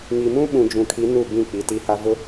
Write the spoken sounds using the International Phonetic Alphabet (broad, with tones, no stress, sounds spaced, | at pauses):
ŋ i˨ m ũ˦ ɓ ũ˨ d͡ʒ ũ˨ kʰ i˨˦ n u˦˨ b ĩ˦˨ k͡p i˨ t i˨ h a˦ v ʊ˦